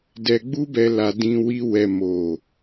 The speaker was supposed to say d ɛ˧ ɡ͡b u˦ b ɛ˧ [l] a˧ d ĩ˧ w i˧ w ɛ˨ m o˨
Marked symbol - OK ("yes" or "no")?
yes